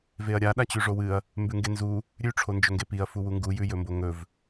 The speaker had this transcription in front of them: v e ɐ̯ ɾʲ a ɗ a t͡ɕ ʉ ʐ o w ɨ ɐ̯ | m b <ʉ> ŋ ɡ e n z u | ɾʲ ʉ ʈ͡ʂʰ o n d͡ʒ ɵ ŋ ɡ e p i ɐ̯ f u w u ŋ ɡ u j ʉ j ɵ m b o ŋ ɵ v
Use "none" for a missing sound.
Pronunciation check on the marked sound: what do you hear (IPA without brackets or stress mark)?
ʉ